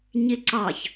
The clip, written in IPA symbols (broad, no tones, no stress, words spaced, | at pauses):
ɲɪǀɑç